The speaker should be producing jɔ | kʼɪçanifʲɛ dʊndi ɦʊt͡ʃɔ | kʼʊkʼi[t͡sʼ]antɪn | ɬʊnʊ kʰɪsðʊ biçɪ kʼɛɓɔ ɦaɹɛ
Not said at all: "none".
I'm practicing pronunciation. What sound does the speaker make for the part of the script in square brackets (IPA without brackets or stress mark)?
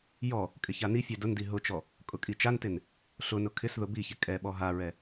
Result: t͡ʃ